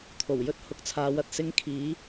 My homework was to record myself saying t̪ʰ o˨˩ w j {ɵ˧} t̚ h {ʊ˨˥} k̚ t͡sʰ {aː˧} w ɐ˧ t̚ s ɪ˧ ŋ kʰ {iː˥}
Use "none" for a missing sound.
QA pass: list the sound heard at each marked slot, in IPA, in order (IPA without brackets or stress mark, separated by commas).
ɵ˥, ʊ˨˥, aː˨˧, iː˨˧